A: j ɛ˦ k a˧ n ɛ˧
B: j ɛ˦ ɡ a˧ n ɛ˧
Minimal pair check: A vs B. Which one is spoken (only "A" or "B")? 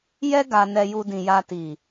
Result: B